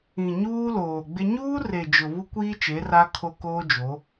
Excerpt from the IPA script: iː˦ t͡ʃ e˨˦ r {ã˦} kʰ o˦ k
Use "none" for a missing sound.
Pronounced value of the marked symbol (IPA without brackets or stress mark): a˦